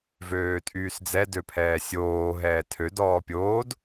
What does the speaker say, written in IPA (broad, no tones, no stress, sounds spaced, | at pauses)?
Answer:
v øː tʼ yː s d͡z ɛ d ø pʰ ɛː sʲ oː ɦ ɛː tʰ ø d ɔː pʲ oː d